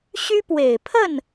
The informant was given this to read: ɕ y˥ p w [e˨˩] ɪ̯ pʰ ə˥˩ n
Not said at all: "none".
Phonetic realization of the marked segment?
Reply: e˨˩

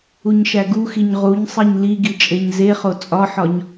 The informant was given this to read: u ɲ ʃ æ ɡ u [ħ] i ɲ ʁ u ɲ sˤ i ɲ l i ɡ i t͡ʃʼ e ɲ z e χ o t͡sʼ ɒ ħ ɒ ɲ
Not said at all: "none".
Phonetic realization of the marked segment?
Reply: x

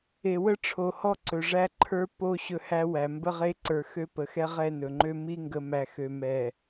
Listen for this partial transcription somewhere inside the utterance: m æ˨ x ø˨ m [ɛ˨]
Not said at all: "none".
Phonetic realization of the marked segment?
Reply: ɛ˨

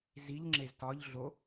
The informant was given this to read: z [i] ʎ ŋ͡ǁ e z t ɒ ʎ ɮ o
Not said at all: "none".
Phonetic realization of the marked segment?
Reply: i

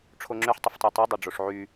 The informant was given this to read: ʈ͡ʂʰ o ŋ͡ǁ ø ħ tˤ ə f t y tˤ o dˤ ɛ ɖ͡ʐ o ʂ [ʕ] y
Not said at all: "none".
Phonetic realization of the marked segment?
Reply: ʕ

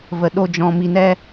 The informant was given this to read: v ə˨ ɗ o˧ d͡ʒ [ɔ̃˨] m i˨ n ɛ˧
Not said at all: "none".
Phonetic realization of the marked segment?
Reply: ɔ̃˨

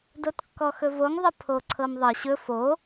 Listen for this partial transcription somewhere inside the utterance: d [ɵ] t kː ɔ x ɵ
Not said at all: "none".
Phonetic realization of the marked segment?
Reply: o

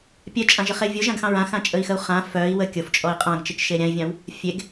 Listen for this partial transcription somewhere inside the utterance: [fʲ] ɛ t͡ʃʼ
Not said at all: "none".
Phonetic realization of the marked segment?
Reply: pʲ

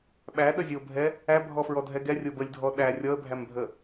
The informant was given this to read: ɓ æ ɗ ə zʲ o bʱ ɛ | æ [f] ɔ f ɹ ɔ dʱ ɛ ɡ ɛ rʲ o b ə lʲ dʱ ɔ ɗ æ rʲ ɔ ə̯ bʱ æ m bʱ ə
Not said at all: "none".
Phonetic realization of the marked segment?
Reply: bʱ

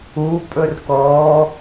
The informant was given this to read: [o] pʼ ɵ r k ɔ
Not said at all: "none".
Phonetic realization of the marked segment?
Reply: u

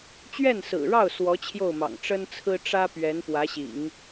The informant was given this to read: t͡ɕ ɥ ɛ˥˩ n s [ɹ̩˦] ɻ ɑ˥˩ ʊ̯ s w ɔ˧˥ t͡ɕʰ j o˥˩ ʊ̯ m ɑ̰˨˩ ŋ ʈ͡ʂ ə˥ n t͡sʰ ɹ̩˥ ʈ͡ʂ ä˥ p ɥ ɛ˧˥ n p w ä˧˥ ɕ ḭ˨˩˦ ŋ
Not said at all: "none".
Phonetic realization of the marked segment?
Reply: ɹ̩˨˩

